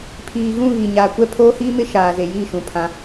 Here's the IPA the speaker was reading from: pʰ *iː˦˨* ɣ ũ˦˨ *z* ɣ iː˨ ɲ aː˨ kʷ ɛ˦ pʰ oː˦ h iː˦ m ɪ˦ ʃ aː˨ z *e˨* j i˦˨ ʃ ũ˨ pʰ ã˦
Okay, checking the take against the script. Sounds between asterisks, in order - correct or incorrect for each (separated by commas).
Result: incorrect, incorrect, correct